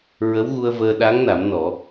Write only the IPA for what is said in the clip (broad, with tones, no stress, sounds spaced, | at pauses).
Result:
ɹ ə˧˥ w ɣ u˧ ə̯ v əː˧ ɗ a˧˥ ŋ n a˨˩˦ m n ɔ˨˩˦